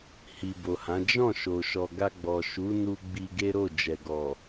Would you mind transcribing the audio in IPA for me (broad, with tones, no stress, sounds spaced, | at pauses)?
h i˨ b o˨ h ã˨˦ d͡ʒ ɔ̃˦˨ ʃ o˨ ʃ ɔ˨ ɡ a˧ ɡ͡b ɔ˨ ʃ u˨˦ n u˧ ɡ͡b i˧ ɡ e˦ ɾ o˦˨ d͡ʒ ɛ˨ ɡ ɔ˨